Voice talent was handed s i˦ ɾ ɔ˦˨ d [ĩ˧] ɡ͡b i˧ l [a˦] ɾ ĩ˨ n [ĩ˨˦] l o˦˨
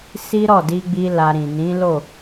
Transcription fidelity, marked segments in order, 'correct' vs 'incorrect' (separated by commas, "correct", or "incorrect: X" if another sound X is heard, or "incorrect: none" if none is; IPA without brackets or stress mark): incorrect: i˧, incorrect: a˧, correct